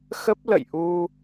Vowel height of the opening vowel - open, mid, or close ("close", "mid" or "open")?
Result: mid